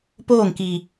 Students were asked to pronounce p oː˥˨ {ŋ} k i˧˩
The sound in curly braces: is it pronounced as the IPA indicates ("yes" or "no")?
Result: yes